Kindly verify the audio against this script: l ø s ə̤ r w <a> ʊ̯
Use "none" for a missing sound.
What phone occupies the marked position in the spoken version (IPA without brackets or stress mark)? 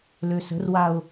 a